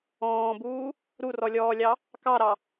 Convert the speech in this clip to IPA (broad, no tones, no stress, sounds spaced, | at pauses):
ɔ̃ː b uː | ɾ u r ɔ lʲ ɔː lʲ ɑ | k ɑ ɾ ɑ